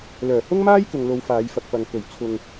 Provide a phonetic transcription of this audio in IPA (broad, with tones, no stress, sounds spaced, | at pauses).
l œː˨˩ h ʊ˥ ŋ m aː˥ j k ʊ˨ ŋ l o˨˧ w f aː˨˧ j f ɐ˨ k̚ p ɐ˨ ŋ k ɵ˨˩ ɥ t͡sʰ ʊ˧ ŋ